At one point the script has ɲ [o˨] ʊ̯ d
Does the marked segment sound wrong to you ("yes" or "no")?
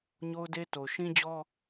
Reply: yes